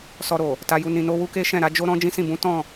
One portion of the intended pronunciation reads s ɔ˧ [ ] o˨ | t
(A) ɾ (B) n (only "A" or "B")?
A